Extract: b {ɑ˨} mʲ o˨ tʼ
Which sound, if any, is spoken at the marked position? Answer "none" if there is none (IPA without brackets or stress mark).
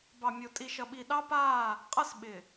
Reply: ɑ˨